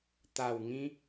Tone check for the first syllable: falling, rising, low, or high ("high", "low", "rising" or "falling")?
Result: low